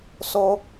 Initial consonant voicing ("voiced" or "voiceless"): voiceless